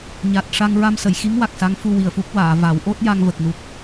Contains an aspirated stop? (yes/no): no